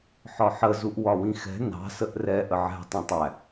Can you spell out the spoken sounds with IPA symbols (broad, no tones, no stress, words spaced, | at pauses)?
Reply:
ħɒħə zuʔwɒwĩxɛ̤ nɑ̤ səʔrɛ ʔəʕɛ̤ tˤĩtˤæ